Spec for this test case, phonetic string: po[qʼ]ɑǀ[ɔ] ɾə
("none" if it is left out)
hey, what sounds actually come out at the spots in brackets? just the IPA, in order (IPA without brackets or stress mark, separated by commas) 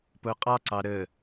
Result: qʼ, ɑ